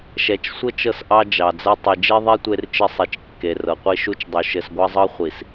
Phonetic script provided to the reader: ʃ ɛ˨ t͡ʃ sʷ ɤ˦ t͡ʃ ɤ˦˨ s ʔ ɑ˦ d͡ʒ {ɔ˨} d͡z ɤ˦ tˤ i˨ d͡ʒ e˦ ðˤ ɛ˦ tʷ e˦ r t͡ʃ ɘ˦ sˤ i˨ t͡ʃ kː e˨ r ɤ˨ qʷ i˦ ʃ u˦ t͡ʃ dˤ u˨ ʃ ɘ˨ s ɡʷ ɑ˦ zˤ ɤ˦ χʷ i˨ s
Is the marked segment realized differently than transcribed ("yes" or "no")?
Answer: yes